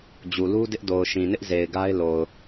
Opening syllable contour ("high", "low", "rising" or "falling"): low